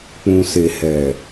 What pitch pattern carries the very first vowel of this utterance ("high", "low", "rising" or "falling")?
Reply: low